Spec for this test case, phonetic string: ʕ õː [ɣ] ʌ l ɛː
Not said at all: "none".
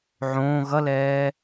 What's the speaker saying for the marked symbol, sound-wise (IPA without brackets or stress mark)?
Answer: ɣ